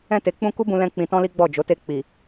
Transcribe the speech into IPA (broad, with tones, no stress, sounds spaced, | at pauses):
ɛ̃˧ t e˨ k͡p ũ˧ k u˦ b ũ˧ l ɛ̃˧ k͡p ĩ˧ t ɔ̃˦ l i˦ ɡ͡b ɔ˦˨ d͡ʒ o˨˦ t e˧ k͡p i˨